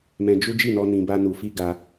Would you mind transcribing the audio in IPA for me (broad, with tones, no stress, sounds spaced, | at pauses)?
m ɛ̃˧ d͡ʒ u˦ d͡ʒ i˦˨ n ɔ˧ n ĩ˧ b a˦ n u˧ f i˦ ɡ a˧